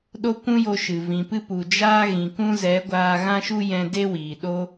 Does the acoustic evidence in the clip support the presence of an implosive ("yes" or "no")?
yes